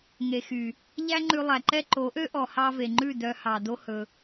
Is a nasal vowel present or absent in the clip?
absent